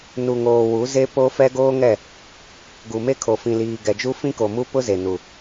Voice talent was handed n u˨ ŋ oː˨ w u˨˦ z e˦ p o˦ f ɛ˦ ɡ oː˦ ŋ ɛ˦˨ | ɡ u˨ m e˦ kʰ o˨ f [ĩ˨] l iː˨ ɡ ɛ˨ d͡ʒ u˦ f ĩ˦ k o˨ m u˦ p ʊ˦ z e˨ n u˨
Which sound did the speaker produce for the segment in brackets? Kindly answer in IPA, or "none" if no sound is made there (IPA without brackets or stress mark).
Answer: ĩ˨